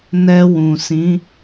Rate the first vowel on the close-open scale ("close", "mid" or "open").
mid